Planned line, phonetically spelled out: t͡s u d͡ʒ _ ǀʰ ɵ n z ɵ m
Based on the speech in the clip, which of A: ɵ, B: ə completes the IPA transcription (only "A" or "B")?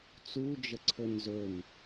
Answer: B